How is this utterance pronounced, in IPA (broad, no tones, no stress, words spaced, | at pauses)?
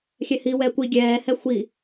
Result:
xʲɛhiwɛː kʷi ɡʲɛːhɛ xʷi